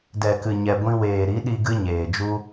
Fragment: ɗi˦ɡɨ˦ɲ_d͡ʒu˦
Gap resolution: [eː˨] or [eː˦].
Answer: eː˨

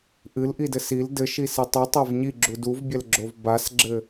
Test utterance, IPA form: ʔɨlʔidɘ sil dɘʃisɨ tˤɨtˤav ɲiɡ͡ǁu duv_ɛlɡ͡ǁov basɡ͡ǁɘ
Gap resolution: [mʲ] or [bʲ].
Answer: bʲ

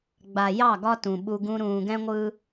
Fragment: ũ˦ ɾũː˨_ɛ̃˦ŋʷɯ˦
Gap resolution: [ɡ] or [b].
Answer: ɡ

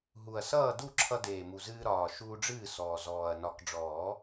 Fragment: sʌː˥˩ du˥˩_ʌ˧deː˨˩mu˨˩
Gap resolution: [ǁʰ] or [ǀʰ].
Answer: ǁʰ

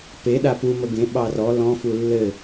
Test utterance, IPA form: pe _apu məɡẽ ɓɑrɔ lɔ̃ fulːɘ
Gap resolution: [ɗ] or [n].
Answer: ɗ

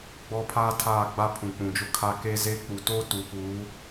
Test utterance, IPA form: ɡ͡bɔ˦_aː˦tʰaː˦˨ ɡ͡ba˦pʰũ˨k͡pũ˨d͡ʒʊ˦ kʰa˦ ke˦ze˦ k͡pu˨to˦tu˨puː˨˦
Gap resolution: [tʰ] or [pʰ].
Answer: pʰ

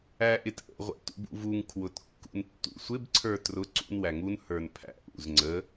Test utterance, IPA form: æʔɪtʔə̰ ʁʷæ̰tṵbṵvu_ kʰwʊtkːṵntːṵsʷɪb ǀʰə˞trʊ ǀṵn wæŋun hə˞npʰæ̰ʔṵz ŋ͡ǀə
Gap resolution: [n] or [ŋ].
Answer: ŋ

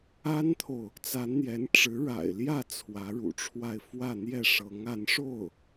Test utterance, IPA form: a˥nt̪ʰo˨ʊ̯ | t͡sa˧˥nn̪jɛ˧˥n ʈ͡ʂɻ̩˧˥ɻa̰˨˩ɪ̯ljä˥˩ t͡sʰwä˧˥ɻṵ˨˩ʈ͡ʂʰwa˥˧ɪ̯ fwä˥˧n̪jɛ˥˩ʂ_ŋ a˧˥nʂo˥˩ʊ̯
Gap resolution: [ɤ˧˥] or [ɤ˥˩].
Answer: ɤ˧˥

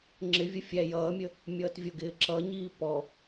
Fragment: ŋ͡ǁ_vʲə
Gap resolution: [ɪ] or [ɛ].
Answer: ɪ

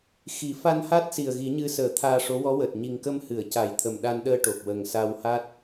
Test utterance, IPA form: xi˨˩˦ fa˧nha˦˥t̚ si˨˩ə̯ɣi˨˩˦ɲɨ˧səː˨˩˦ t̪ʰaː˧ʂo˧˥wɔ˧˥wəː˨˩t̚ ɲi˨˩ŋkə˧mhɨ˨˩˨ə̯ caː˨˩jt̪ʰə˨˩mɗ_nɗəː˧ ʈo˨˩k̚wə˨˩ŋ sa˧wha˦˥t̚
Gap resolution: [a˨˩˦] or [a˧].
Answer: a˧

